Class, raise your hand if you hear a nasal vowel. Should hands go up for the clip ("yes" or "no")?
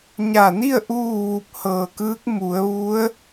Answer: no